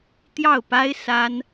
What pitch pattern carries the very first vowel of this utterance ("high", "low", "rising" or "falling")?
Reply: falling